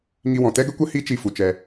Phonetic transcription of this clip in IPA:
ŋ i˧ w ɔ̃˨ t ɛ˦ ɡ ə˦ kʷ ə˦ h i˦ t͡ʃ i˧ f u˨ t͡ʃ ɛ˧

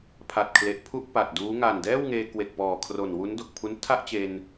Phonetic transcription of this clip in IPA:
pʰ a˨˩ t̚ kʰ l e˨˩ ʔ pʰ u˥˩ ʔ p a˨˩ t̚ d uː˦˥ ŋ a˨˩ n d ɛː˥˩ w ŋ eː˧ k w e˨˩ k̚ p ɔː˨˩ kʰ r o˨˩ n w u˦˥ n d o˨˩ k̚ pʰ u˦˥ n tʰ a˥˩ ʔ t͡ɕ e˧ n

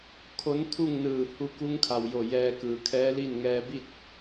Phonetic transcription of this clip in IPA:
kʰ o˧˥ n t̪ʰ u˥˨ ŋ n ɯː˧˩ h u˧ k u˧˥ ŋ kʰ a˩ w j o˧˩ j ɛː˧ k ɯː˩ kʰ ɛː˧˥ l i˥˨ n ŋ ɛː˧ b i˥˨ t̚

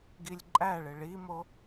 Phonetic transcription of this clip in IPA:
ɡ i lʲ ǃʼ æ ɭ ɪ ɭ i m o

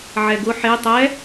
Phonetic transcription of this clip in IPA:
ʕ ɛ ɡ ʊ ħ e tˤ ɛ

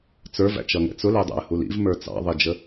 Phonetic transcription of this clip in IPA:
t͡s ə˞ v æ̰ t͡ʃ ʌ ŋ ɛ̰ t͡s ʊ l ɛ dˤ æ̰ ə̯ h u l ḭ v m ə˞ t͡s ɑ̰ ðˤ i d͡ʒ ə

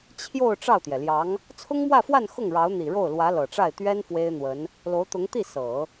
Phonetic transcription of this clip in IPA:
t͡ɕʰ j o˥˧ ʊ̯ ʈ͡ʂ ɑ˥˩ ʊ̯ t̪ j ɛ˩ l j ɑ˧˥ ŋ | t͡sʰ ʊ˥ ŋ m w ä˥˧ f w a˥˧ n x ʊ˥˩ ŋ ɻ ɑ˧˥ ʊ̯ n̪ i˨˩ ɻ o˥˩ ʊ̯ l w ä˧˥ l ɤ˨˩ ʈ͡ʂ a˥˩ ɪ̯ t̪ ɥ ɛ˥ n f w e˥ ɪ̯ n̪ w ə˧˥ n | l o˧˥ ʊ̯ t̪ ʊ˧˥ ŋ t̪ i˥˩ s ɤ˨˩˦

